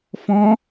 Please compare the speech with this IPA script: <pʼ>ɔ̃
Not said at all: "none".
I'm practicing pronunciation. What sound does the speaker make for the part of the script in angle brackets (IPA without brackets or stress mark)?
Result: f